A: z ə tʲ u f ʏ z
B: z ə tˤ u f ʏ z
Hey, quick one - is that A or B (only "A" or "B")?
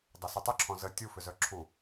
A